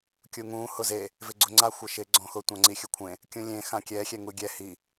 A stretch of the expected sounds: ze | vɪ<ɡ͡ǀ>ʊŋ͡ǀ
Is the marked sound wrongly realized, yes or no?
no